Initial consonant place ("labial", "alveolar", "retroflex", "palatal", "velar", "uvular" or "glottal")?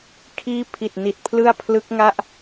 velar